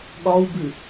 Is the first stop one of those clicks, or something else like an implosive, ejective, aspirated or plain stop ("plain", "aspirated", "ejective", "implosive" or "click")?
implosive